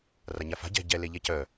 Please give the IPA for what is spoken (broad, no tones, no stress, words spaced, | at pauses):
raɲafa̤ ɟɛ̤ ɟɛ leʎɛcœ